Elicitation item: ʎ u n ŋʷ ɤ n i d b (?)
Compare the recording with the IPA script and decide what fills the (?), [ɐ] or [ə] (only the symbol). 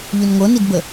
ə